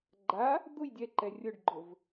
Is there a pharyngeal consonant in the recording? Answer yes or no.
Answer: no